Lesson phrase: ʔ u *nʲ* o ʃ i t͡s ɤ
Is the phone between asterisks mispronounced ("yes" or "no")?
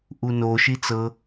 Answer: yes